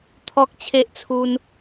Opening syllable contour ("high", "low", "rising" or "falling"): high